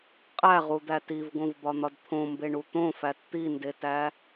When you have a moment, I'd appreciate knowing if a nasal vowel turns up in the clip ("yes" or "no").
yes